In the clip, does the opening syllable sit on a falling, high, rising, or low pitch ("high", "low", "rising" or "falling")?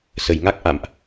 low